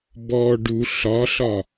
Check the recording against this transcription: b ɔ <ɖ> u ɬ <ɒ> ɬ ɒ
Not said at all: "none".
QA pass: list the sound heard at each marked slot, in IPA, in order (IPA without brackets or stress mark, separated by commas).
ɖ, ɒ